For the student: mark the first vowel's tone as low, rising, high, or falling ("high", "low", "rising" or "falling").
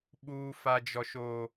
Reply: high